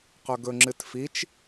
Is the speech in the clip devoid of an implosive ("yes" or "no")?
yes